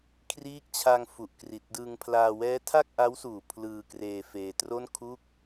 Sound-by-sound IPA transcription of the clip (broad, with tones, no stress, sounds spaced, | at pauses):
kʰ r iː˦˥ k̚ t͡ɕʰ a˧ ŋ f u˨˩ ʔ k r i˨˩ t̚ d ɯ˧ ŋ pʰ l aː˧ w ɛː˦˥ tʰ a˥˩ k̚ ʔ a˦˥ w s uː˨˩ pʰ l ɯː˧ k r eː˧ f eː˧ t r o˥˩ n kʰ uː˥˩ k̚